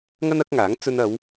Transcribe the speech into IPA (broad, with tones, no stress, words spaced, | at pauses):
ŋɐ˥nɐ˨˥k̚ŋaː˨˥ŋ t͡sɵ˧nɐ˨˧w